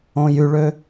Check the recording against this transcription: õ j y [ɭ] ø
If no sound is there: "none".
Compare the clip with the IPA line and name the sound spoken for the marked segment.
ɭ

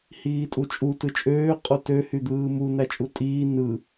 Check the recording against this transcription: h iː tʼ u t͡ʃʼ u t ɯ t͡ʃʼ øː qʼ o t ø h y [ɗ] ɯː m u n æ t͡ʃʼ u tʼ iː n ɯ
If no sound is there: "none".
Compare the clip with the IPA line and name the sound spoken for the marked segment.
d̪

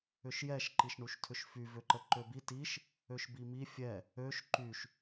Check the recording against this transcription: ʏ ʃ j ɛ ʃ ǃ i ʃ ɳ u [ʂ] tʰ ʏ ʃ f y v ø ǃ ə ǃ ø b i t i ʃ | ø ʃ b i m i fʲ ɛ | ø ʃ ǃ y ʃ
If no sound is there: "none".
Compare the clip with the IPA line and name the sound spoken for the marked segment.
ʃ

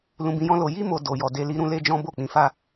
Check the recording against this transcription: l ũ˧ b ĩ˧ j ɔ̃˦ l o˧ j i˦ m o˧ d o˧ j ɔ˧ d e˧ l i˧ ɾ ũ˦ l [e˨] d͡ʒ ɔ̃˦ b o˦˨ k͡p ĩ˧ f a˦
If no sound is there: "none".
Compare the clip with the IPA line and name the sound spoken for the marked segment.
e˦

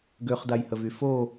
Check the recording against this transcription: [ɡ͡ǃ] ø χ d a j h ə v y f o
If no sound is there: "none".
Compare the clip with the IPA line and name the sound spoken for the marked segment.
ɡ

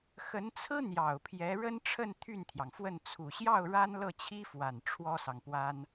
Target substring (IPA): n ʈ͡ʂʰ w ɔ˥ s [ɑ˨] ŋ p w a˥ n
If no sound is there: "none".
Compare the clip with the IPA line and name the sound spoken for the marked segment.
ɑ˨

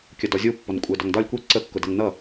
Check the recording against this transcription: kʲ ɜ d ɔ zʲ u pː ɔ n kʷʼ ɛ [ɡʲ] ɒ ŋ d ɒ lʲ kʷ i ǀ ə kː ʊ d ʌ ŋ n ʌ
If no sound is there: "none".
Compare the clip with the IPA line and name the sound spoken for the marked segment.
d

